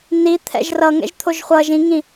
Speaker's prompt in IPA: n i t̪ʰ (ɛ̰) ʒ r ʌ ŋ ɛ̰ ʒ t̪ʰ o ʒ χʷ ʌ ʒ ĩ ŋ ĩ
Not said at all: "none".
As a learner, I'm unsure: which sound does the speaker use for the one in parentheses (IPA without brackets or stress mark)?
ɛ̰